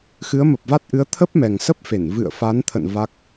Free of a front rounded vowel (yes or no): yes